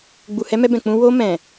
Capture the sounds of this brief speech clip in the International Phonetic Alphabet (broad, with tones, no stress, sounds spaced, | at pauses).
ɡ͡b u˨ h ɛ˧ m ɛ˧ b ɛ̃˨ k͡p ũ˧ w o˧ m ɛ̃˨